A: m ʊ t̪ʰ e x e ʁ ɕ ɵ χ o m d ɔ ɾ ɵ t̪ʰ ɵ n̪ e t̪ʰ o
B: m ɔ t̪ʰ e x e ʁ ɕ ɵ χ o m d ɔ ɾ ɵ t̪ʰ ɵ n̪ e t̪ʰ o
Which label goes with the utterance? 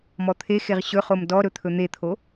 B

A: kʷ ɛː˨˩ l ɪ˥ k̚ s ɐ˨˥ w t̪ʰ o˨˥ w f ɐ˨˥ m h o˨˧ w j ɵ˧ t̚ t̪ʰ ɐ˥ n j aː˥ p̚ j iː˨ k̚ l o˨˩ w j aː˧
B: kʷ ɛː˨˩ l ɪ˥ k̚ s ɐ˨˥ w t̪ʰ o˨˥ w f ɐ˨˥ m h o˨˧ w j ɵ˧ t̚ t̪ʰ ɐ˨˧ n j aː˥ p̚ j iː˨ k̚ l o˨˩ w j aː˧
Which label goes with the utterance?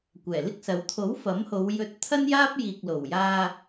A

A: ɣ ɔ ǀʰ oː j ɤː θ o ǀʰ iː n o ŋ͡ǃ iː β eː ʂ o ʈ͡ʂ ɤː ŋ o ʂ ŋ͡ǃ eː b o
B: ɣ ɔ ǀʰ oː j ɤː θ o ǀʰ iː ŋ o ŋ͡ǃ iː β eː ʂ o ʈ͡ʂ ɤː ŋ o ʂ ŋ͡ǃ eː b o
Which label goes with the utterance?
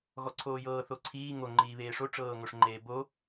B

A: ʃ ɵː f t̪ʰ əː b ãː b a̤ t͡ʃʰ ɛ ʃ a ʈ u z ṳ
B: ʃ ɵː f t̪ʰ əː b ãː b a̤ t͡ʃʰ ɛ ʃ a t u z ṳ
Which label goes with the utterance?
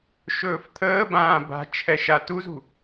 B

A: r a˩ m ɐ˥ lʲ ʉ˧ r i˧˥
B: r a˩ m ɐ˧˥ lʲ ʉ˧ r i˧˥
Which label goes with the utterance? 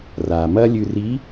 A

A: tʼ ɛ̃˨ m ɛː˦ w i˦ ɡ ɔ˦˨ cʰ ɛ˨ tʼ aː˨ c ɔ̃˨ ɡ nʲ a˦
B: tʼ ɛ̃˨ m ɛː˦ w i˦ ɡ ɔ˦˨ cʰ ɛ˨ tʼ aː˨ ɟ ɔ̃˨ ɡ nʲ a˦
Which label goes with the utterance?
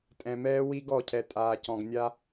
A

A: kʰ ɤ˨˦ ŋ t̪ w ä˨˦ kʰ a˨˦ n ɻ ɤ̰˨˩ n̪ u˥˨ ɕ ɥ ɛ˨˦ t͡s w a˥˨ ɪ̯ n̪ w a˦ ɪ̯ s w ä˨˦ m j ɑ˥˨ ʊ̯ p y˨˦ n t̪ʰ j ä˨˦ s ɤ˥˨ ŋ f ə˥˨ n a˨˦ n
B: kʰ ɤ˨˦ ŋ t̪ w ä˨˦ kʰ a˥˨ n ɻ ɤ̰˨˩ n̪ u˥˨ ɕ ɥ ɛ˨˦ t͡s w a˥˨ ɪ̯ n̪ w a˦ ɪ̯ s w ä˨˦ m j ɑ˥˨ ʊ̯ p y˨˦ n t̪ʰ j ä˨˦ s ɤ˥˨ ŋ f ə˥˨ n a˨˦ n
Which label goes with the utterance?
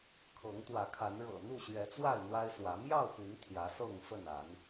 A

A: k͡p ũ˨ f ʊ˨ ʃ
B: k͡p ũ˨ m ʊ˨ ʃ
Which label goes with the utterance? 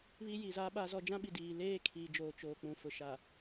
A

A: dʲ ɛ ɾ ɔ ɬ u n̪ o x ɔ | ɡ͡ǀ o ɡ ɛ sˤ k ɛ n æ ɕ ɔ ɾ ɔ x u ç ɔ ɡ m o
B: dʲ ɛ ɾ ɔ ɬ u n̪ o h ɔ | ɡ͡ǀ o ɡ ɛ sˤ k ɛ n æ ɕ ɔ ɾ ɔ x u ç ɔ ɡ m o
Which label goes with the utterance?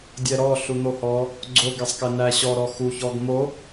B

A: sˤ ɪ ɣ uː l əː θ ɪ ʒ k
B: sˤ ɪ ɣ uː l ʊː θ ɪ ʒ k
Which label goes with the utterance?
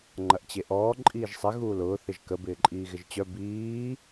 B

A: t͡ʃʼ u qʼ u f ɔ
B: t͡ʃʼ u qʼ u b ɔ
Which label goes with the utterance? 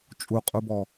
B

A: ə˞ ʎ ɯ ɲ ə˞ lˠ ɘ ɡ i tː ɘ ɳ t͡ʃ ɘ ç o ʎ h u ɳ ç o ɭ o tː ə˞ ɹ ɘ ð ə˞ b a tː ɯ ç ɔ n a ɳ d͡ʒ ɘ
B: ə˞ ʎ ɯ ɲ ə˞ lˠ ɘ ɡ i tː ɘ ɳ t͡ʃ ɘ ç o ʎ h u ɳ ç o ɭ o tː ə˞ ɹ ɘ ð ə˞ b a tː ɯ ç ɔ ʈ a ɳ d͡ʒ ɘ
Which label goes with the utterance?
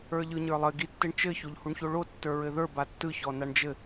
A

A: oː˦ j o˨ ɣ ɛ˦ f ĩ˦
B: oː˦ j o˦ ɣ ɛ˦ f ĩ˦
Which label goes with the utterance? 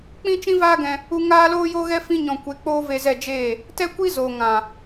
B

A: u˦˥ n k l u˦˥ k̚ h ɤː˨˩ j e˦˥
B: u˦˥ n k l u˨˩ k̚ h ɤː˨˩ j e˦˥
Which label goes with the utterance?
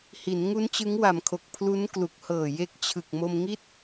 B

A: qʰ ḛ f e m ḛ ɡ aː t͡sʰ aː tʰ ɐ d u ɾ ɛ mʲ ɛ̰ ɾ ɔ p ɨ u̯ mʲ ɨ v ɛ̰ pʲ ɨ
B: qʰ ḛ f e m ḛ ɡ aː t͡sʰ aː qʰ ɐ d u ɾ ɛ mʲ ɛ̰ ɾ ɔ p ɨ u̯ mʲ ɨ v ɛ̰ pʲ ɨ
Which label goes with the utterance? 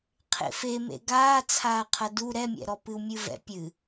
B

